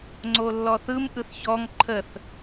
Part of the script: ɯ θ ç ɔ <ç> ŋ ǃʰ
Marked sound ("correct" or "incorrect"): incorrect